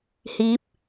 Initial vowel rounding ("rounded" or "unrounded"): unrounded